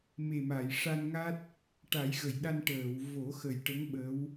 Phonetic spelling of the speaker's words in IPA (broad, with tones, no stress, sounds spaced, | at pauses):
m e˨˩ m a˨˩˨ j ʂ a˧ n ŋ a˦˥ t̚ | ʈ a˨˩˦ j ɣ ə˨˩˨ j ɗ a˧ n ʈ əː˨˩˨ w v o˨˩˦ x ə˨˩ j ʈ ə˧˥ ŋ ɓ ə˧˥ w